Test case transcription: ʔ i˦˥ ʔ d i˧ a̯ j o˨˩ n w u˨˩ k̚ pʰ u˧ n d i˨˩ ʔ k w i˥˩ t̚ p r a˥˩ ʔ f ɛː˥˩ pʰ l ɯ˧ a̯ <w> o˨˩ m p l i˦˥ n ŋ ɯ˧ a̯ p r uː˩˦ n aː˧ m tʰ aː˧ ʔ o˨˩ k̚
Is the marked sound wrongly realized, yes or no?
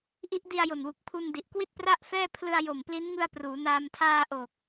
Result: yes